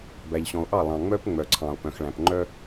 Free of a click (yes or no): no